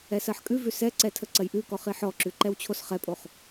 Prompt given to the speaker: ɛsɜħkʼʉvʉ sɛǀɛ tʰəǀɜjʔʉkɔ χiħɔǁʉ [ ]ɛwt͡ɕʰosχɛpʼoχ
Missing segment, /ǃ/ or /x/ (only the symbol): ǃ